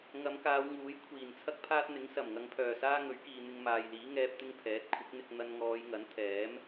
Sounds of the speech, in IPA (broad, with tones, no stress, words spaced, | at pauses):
ŋɐ˨˧mkaː˨˧wŋuː˨˥jkʷʰiː˨˩n t͡sʰɐ˥k̚pʰaː˥t̚n̪ɪ˨˥ŋ sɐ˨˩m ŋɐ˨˧ŋpʰœː˨˩ saː˥ŋɵ˨˥ɥkiː˨ n̪ɪ˧ŋmaː˨jliː˨˥ ŋɛː˧p̚ t̪ɪ˥ŋpʰɛː˨˥t̚ kʷʰɪ˨˥k̚n̪ɪ˧k̚ n̪ɐ˧nŋɔː˨˧jŋɐ˨˥n t̪ʰɛː˨˥m